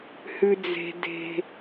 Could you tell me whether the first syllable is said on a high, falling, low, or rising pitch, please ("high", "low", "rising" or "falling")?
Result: low